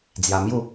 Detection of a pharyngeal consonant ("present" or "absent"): absent